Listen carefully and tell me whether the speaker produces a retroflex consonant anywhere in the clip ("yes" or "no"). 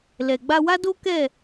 no